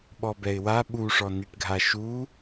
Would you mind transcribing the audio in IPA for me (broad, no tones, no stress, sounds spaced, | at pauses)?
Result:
ɓ ɔ b ɛ ɪ̯ w a ɓ u ʂ ɔ n i ʈ ɡʱ a ʃ u